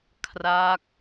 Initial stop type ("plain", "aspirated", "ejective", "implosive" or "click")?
aspirated